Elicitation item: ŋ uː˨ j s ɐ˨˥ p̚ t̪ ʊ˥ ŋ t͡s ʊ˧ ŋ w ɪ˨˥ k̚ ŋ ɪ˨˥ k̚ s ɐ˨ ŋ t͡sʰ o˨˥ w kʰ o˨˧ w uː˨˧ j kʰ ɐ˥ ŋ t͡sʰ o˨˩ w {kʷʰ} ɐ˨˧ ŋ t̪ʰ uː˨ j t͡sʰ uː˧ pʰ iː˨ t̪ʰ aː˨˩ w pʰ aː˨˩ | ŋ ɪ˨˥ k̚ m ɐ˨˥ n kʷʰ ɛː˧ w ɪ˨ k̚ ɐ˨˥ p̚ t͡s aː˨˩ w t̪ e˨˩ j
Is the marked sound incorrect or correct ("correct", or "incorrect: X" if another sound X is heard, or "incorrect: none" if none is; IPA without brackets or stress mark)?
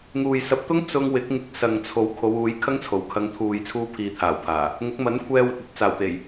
incorrect: kʰ